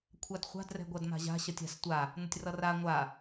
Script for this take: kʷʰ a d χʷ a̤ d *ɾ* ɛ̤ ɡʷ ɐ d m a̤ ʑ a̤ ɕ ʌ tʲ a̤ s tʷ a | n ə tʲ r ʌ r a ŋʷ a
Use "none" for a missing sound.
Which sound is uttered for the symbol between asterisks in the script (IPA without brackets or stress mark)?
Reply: r